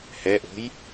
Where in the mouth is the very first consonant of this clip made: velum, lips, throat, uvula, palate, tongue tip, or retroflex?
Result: throat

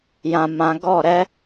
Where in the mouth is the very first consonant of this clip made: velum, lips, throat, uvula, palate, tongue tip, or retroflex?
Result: palate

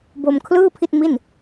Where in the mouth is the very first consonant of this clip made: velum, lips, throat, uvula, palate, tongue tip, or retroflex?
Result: lips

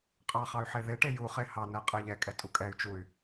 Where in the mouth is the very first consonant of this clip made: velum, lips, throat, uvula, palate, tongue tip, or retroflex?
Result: uvula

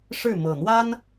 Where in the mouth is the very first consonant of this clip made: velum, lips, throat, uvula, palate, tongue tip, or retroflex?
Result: retroflex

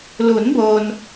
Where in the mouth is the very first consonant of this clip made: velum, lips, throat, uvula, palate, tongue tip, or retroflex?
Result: tongue tip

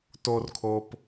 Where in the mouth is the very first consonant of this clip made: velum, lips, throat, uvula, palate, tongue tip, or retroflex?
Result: tongue tip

